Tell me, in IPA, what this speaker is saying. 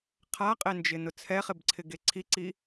qʰ a qʼ e n d͡ʒ ɪ n ʊ t͡sʰ ɛ χ ɪ b ǀʰ ɪ ɡ e ǀʰ i ǀ i

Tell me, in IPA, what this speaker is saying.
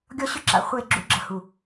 ɡʲ ɔ˦ ɕ ʏ˦ ǁ a̰˨ χʷ e˦˨ ɡ͡ǁ ṵ˦ ɡ͡ǁ ə˨ h u˨

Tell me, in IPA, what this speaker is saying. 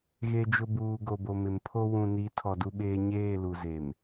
ɣ e˨ d͡ʒ ʊ˨ b uː˨ ɡ o˨ b o˨ m ɪ˨ m pʰ o˦ w ũ˨ n i˨˦ tʰ ɔ˨ d u˦ ɓ eː˦ ɲ eː˦˨ l u˨ z e˨ m

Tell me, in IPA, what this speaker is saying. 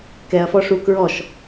k ɛ ɐ̯ f ɔ ʂ u k ɹ ɔ ʃ

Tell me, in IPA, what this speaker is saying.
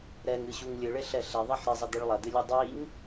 ɾ ɛ ŋ ɨ ɕ u ŋ lʲ ɨ ɭ e ɬ ɛ ɬ ɛ ðˤ ɛ ħ ɾ e zˤ ɐ d̪ ɨ ɭ lˠ ɐ d̪ ɨ lʲ e dˤ i ŋ

